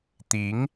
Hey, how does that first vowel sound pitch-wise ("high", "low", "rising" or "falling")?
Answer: rising